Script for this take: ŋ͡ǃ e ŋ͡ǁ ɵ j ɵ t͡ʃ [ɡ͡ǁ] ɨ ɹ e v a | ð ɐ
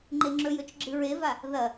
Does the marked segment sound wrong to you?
no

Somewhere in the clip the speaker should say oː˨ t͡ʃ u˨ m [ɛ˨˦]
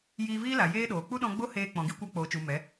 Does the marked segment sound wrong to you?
no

